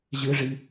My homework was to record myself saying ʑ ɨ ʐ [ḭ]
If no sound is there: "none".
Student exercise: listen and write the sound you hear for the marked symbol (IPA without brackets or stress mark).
i